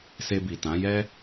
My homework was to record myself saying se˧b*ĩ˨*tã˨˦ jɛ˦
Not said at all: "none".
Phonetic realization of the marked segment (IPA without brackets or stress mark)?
i˨